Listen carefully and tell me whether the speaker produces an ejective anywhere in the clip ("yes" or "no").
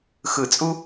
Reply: yes